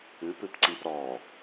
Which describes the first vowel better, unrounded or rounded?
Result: unrounded